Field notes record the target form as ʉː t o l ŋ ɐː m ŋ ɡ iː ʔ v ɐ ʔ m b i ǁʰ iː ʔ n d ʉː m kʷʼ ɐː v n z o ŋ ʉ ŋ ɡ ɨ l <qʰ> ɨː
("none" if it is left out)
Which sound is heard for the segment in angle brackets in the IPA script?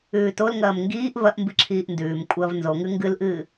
ʔ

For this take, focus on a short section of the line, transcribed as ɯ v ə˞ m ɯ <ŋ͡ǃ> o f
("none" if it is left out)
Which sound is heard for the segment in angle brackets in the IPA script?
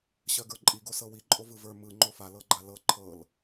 ŋ͡ǃ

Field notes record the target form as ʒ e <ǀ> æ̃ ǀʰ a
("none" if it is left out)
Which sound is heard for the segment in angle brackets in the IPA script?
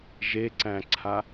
ǀ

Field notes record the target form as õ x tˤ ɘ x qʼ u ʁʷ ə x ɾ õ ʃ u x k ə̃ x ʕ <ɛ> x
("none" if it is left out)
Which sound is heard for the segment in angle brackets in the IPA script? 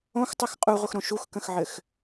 ɘ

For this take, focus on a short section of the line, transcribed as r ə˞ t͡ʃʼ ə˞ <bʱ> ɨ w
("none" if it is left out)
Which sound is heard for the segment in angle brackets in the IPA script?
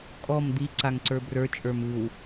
m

